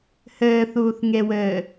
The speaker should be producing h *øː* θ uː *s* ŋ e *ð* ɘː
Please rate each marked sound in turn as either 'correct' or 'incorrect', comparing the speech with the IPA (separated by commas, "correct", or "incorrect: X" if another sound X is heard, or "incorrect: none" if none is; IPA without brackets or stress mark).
incorrect: ɘː, incorrect: θ, incorrect: w